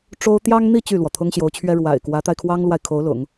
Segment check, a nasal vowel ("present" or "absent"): absent